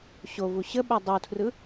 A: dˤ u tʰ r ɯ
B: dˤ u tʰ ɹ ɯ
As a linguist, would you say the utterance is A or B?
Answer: A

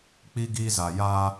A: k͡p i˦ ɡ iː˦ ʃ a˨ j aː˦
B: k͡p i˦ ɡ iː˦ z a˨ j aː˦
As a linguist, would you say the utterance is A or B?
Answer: B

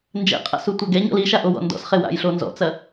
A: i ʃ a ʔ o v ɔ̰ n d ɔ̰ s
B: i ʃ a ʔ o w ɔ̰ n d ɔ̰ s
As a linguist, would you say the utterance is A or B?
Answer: B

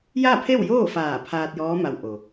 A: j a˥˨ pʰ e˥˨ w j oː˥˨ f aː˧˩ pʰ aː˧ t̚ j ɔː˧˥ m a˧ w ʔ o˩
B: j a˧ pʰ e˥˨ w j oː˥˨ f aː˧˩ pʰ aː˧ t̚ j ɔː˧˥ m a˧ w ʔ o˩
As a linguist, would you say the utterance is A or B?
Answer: A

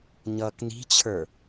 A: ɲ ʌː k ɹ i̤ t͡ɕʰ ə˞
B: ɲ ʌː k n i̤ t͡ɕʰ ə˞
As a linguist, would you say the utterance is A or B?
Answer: B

